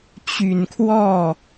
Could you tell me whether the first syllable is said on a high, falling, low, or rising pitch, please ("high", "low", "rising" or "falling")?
low